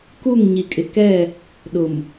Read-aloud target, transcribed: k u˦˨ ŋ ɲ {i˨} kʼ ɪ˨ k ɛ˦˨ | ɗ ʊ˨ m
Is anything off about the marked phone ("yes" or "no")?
no